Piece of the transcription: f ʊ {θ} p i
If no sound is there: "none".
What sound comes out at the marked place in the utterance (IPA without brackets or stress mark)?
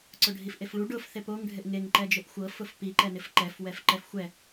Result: f